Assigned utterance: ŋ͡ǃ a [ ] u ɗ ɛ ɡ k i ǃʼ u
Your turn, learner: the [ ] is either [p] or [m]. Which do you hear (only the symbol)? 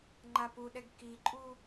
p